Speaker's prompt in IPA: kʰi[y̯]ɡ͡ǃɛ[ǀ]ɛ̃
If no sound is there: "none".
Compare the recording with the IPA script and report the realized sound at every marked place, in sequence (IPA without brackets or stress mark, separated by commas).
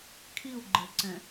u̯, ǀ